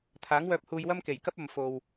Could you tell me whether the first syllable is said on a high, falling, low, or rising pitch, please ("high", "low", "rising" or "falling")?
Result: rising